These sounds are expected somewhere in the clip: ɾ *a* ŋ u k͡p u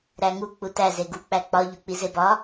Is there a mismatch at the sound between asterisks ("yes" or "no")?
yes